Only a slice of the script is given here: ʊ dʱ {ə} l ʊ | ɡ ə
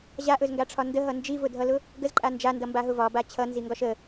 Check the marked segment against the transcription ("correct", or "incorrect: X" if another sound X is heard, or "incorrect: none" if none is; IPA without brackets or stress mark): incorrect: ʌ